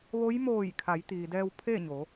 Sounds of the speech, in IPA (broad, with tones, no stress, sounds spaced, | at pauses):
ʋ o˧˥ j m oː˧˩ j kʰ a˩˧ j t̪ iː˩ d ɛː˧ w pʰ e˥˨ ɲ o˩˧